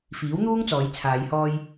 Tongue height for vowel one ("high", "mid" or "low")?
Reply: high